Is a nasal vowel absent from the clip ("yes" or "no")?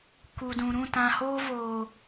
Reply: no